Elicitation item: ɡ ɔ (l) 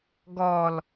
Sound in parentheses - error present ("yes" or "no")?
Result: no